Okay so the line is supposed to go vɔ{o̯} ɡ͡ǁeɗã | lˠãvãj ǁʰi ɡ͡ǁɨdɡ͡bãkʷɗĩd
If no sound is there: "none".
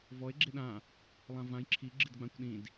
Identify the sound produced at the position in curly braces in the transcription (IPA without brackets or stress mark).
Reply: e̯